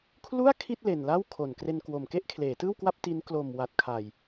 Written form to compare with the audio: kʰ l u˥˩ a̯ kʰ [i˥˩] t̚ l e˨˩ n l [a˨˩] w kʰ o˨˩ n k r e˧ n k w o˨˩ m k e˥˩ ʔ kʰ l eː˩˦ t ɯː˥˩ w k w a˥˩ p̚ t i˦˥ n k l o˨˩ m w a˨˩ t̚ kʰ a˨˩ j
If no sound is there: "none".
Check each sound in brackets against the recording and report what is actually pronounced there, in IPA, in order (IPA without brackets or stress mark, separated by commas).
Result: i˥˩, a˥˩